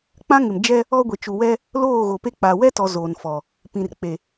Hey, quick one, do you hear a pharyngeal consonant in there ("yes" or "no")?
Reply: no